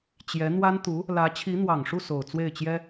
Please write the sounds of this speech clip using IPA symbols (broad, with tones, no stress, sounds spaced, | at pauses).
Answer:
t͡ɕ j ɛ˧˥ n̪ w a˥ n t̪ u˧˥ | l ä˧˥ t͡ɕʰ i˧˥ n̪ w ɑ˨˩ ŋ ʂ u˥˩ s o˨˩ ʊ̯ t͡s w e˥˩ ɪ̯ t͡ɕ j ɛ˥